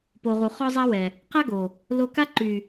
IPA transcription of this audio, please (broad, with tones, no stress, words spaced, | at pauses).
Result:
po˨ʁu˨ χɔ˦zˤa˦wɛ˨ | qa˦ɡo˨ | lo˧ka˦ ǃy˨